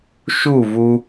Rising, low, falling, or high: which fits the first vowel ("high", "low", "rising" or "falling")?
falling